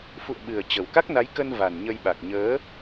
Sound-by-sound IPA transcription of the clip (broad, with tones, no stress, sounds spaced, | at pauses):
f ṵ˧˨ ə̯ ɓ ɨ˨˩ ə̯ t͡ɕ ə˨˩ w k a˦˥ k̚ n a˨˦ j k ə˧ n v a˨˩ n ɲ ə˧ j ɓ a˨˩ k̚ ɲ əː˨˦